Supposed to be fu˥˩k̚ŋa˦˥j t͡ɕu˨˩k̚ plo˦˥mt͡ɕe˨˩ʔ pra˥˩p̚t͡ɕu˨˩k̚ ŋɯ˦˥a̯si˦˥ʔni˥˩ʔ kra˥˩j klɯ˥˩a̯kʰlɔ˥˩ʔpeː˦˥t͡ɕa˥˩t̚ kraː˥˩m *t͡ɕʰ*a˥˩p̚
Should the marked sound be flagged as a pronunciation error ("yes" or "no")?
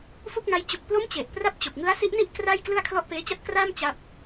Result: yes